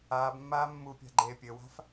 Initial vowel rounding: unrounded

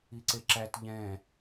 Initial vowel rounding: unrounded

